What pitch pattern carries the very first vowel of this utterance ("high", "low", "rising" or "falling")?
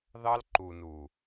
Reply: high